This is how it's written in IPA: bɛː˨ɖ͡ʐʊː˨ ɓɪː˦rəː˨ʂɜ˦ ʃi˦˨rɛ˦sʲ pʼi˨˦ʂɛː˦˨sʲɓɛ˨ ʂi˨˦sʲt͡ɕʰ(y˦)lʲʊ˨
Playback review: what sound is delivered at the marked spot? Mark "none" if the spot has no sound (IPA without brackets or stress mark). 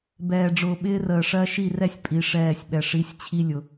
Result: i˦